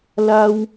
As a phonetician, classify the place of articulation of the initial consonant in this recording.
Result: alveolar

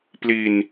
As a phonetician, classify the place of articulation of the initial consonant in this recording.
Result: labial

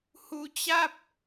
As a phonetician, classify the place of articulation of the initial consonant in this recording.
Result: glottal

